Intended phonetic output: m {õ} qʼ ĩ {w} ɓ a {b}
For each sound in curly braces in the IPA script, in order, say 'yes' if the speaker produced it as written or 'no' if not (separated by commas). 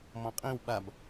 no, yes, yes